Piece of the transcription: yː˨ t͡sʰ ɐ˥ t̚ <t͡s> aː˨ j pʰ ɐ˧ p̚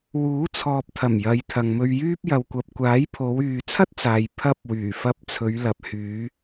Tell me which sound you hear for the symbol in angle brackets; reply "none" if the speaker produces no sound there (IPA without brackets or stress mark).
t͡s